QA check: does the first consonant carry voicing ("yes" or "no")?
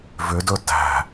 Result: yes